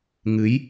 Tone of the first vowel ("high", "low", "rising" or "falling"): rising